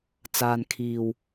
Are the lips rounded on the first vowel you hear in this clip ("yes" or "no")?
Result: no